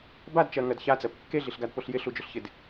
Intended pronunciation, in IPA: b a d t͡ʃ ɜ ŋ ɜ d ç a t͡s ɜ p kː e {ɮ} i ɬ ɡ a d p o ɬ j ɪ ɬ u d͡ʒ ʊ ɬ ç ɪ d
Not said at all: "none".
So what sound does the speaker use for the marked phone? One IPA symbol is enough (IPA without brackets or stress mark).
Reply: ɮ